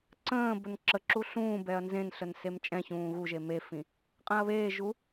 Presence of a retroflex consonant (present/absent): absent